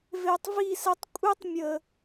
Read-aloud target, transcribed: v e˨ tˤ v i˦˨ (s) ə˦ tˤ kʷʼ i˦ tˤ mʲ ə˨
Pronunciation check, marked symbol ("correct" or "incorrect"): correct